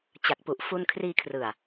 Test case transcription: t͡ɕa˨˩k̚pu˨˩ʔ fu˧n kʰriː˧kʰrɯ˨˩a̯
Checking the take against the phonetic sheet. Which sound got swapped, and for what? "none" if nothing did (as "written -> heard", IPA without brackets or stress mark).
none